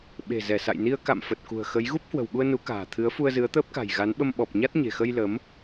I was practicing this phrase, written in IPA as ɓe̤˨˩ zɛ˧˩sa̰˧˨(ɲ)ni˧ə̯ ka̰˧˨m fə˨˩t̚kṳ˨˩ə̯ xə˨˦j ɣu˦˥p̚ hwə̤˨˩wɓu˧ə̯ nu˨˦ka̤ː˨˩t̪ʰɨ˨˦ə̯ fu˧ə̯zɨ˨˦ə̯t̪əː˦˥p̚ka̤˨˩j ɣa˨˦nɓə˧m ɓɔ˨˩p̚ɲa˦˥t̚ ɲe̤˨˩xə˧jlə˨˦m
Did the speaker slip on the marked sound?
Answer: yes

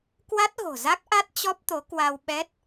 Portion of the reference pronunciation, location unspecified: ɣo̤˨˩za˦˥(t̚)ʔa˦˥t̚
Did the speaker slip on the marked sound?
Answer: yes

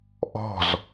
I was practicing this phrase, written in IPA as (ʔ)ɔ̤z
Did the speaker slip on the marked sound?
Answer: no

